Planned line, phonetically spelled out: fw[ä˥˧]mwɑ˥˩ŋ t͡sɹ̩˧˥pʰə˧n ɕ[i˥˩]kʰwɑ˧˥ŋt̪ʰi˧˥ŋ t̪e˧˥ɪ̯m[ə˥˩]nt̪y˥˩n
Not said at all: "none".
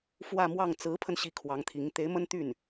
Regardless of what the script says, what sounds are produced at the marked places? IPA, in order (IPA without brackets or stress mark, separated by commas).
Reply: ä˥˧, i˥˩, ə˥